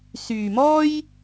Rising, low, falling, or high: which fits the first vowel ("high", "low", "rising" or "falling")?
low